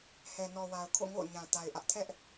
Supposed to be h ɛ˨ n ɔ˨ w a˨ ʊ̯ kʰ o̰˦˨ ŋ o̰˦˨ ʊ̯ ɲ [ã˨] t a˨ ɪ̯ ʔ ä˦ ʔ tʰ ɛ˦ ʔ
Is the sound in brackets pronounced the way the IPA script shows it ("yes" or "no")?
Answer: yes